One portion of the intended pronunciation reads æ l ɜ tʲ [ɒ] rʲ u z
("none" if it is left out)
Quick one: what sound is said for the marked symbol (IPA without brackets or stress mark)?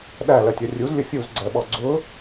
ʌ